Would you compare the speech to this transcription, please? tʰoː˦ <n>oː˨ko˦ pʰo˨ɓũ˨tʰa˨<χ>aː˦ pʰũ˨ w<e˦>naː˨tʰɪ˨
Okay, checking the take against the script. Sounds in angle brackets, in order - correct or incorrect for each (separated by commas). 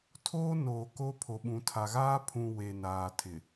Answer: correct, incorrect, incorrect